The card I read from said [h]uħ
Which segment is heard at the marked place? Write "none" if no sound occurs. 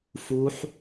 f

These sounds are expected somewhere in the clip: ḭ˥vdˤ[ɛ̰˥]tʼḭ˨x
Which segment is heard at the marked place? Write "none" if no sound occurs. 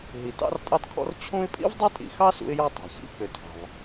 ɛ˥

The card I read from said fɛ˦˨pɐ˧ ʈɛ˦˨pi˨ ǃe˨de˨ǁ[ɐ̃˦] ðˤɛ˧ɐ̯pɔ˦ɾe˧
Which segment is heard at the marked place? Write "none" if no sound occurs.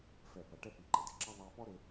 ɐ˦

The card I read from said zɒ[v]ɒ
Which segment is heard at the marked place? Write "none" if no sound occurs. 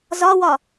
w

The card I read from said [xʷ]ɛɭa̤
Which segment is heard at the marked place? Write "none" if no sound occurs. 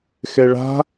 x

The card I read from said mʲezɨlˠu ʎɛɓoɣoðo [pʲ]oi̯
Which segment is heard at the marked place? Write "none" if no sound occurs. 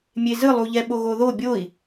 bʲ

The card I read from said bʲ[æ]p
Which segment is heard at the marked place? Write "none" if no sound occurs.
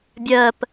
ɜ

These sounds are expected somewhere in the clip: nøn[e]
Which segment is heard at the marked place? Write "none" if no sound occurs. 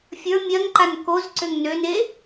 e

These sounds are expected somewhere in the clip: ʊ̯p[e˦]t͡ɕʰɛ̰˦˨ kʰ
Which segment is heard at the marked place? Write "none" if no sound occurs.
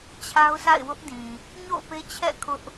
e˦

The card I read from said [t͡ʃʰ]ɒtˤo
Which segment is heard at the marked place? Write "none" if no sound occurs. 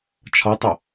t͡ʃʰ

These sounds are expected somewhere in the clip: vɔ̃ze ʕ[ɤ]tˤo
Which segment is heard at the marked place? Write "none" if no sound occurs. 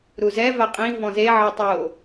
ɤ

